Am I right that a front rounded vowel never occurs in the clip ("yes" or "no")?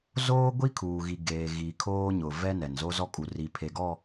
yes